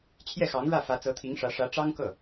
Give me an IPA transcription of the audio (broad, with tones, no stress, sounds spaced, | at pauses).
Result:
t͡ɕʰ j ɛ˥˩ x ɑ˧˥ ŋ ɻ ä˥˩ f ä˧˥ t͡s ɤ˧˥ t̪ʰ i˧˥ ŋ ʂ ä˧˥ ʂ ä˧˥ ʈ͡ʂ ɑ˥ ŋ k ɤ˥˩